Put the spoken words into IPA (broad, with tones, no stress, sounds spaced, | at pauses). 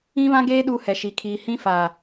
ĩ˦ β ã˦ ɡ eː˦ ɗ u˦ h ɛ˨ ʃ i˨ kʰ iː˨ h ĩ˦ f aː˨